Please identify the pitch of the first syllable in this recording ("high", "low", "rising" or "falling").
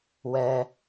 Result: high